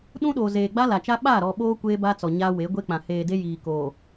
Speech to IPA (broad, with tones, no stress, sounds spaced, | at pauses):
ɗ ũ˦ ɗ oː˨ z eː˨ ɡ͡b a˦ l a˨ t͡ʃ a˦ ɓ a˦˨ ɾ ɔ˨ ɓ oː˦ kʷ eː˦ b a˦ t͡s ɔ˨ ɲ a˦ w e˨˦ ɡʷ e˦ k͡p ã˨ h eː˨ d e˦ j iː˨ k oː˨